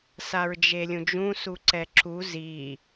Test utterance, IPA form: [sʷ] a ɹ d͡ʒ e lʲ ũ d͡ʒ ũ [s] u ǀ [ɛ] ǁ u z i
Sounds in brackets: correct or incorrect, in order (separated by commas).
incorrect, correct, correct